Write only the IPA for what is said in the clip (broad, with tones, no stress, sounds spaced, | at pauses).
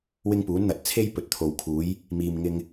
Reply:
w ɪ˥ ŋ p uː˨˥ n n̪ ɐ˨˥ t̚ t͡sʰ e˥ j p ɵ˨ t̚ t̪ʰ o˨ w kʰ uː˨˥ j | m iː˨ m ŋ ɪ˧ ŋ